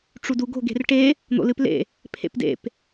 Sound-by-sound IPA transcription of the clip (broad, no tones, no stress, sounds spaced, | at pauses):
ʈ͡ʂ u d u ɡ o̤ ɡ e̤ r ʈ e | n̪ o̰ l ɨ p l ḛ | pʰ ḛ p d ḛ p